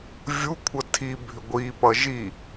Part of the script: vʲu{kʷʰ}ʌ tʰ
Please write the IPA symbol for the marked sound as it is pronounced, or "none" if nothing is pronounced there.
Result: kʷʰ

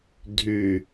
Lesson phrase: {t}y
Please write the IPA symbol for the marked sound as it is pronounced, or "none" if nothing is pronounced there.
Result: dʱ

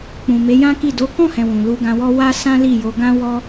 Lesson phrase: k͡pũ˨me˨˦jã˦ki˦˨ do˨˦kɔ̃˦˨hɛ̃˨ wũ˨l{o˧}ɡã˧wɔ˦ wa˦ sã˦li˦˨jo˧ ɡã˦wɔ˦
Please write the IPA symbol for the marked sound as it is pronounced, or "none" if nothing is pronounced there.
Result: u˧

